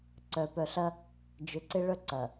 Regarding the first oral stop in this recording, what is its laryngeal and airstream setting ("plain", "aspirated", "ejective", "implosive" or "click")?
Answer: click